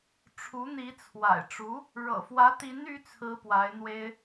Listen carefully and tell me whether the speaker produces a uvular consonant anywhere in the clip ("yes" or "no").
no